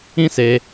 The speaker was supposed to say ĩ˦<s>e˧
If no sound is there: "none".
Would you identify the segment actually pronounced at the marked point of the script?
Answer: s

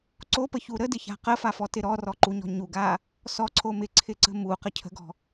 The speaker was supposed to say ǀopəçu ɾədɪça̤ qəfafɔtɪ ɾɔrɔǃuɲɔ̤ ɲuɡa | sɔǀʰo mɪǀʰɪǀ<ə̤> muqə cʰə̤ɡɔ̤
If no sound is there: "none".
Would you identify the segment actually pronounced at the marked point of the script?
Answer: ə̤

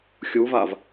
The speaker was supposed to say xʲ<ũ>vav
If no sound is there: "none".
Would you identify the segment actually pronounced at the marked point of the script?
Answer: u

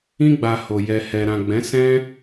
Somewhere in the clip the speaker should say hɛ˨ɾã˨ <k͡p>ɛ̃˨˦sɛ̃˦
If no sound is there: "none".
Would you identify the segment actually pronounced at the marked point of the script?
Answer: ɡ͡b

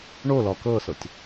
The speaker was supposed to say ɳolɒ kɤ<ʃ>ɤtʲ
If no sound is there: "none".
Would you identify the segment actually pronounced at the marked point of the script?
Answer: s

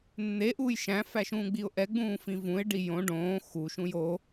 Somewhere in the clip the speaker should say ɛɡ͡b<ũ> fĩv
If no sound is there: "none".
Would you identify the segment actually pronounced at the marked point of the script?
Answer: ũː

